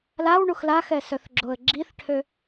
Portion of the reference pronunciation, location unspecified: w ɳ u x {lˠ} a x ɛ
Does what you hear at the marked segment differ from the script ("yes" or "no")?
yes